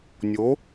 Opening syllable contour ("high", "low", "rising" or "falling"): rising